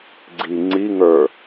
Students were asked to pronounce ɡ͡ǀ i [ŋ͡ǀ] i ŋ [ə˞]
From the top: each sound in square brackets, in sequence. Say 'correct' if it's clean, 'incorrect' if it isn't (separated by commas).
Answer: correct, correct